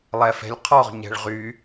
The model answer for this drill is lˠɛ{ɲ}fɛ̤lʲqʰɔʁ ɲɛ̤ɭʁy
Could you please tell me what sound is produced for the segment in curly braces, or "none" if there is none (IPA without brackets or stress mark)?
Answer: none